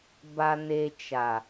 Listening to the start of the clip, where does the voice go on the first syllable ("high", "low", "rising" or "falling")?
low